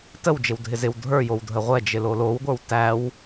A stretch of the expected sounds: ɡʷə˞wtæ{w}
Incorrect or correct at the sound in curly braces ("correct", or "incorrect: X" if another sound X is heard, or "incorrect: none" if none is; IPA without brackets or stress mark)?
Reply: correct